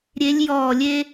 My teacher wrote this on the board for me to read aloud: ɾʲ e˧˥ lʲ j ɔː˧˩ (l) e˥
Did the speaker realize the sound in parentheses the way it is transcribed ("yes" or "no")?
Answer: no